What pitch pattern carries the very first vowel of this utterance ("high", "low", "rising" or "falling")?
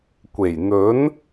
low